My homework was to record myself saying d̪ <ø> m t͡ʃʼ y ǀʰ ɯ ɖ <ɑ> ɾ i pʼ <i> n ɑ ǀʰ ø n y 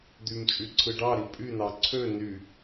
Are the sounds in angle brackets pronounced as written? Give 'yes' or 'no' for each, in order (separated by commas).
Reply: no, yes, no